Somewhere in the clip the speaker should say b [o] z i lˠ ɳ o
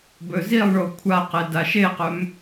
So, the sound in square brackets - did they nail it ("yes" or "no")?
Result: no